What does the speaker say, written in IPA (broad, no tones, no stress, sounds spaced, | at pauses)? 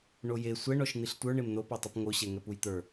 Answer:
ɳ o j e sʷ ɛ ɳ ɔ ʃ n̪ i ɬ tʷ ə˞ ɳ e m n o p ɔ tˤ u p ŋ o ɕ ɛ ŋ ɛ p u j t̪ ə˞